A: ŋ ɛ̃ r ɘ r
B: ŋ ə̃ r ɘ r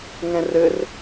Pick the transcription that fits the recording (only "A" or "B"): A